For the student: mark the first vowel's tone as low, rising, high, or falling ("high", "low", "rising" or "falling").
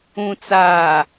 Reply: low